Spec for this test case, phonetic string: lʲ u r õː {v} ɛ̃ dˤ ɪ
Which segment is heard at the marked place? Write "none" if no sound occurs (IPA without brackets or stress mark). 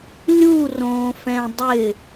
f